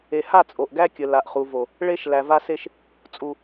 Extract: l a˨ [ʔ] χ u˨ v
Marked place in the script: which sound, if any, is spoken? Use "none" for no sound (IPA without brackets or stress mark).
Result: ʔ